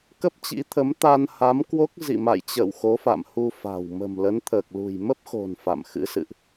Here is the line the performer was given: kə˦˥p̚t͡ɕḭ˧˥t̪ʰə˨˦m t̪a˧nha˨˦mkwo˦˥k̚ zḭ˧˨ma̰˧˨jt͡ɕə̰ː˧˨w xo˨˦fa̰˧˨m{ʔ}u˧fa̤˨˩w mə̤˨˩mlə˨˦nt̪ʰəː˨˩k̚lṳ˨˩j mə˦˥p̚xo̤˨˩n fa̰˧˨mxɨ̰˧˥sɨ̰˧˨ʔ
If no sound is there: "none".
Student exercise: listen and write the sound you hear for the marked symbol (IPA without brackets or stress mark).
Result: h